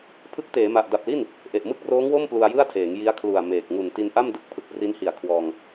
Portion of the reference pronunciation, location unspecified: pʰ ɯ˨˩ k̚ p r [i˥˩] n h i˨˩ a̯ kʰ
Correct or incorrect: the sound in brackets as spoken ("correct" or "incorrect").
incorrect